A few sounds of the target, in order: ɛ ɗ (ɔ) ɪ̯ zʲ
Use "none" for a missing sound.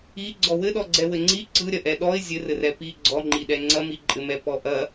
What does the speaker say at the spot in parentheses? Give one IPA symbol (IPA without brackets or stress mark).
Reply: ɔ